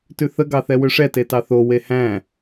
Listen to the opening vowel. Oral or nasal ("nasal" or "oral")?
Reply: oral